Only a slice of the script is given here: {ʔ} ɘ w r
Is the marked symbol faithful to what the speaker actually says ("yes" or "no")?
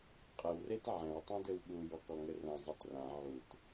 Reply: no